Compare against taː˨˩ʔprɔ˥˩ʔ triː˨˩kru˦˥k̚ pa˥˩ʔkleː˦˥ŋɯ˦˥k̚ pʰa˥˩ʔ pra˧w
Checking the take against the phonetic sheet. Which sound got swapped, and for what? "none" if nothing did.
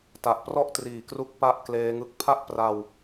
aː˨˩ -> a˨˩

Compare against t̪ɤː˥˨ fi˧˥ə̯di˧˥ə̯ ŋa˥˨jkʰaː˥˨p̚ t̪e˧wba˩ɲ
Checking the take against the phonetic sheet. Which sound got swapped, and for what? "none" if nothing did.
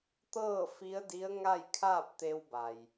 ɲ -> j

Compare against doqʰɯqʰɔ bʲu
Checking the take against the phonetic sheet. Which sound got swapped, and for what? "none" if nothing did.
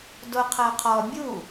ɯ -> ɤ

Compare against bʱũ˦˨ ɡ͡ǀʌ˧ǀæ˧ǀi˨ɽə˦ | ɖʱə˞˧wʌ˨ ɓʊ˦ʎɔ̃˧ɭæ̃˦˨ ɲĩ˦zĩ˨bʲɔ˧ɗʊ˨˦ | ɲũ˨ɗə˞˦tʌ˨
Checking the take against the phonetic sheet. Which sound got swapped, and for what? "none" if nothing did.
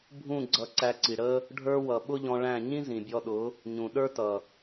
none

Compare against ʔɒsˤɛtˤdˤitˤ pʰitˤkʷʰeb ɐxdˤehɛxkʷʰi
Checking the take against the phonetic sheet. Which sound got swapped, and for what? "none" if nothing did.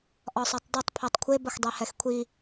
none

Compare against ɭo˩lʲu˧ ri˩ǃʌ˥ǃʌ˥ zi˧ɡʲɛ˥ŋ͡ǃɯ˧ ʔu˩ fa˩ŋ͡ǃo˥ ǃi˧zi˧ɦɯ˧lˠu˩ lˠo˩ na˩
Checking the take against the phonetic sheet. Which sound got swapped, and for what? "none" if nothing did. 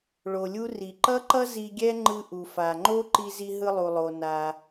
none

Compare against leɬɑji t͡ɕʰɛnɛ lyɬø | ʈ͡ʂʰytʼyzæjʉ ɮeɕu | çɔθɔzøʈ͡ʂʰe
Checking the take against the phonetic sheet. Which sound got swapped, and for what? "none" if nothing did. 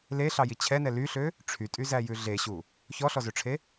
θ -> ɬ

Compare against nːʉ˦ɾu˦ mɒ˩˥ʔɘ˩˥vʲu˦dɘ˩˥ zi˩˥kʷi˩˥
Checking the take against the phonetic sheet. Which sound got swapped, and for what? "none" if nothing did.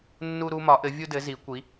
ʉ˦ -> u˦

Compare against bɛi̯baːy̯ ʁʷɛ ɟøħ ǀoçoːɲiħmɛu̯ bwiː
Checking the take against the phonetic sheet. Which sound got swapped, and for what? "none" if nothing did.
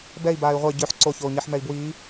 u̯ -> i̯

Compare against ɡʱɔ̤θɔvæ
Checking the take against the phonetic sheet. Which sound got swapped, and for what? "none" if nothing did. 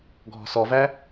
θ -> s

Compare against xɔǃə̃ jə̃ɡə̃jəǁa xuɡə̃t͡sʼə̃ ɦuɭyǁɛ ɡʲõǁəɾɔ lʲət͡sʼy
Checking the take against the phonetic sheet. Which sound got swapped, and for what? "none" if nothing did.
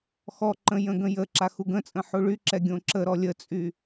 ɦ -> ħ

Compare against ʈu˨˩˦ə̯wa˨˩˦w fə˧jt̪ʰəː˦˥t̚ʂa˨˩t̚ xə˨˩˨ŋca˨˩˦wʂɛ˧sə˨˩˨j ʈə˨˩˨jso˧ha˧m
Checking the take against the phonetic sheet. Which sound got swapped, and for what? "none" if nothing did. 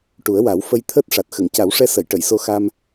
h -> x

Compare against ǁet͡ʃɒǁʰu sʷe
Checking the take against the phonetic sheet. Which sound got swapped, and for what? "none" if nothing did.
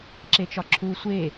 none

